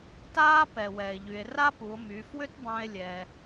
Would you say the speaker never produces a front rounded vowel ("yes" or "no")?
no